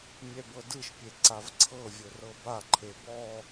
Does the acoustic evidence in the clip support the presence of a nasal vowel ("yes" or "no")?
no